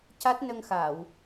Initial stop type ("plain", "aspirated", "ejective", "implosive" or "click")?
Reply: plain